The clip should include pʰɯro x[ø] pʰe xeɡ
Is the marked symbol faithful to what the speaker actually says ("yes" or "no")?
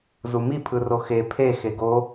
no